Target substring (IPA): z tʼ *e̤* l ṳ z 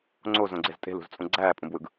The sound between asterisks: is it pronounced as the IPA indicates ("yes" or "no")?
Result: yes